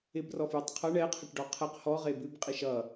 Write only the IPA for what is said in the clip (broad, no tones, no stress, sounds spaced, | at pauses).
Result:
ɪ b r ɔ f j ɪ tˤ qʰ ʌ ɳ ɛ qʰ ə ʈ ɖ ɔ qʰ ɛ q h ɔ ʁ e b ʉ b qʼ i ʃ ʌ